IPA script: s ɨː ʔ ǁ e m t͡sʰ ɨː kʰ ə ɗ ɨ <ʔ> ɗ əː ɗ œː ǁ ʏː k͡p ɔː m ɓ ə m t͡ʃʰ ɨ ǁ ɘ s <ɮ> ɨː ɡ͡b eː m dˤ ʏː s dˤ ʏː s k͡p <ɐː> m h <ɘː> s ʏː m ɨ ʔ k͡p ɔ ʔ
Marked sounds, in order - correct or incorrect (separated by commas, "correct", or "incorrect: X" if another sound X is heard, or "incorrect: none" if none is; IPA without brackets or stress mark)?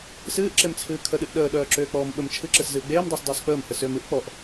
correct, incorrect: z, incorrect: əː, incorrect: ɘ